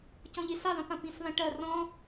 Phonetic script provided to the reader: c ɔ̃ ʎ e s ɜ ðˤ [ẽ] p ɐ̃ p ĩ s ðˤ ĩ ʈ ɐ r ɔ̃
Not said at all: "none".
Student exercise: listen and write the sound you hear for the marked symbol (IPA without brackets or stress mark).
ẽ